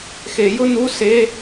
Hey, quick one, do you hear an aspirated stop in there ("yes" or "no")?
no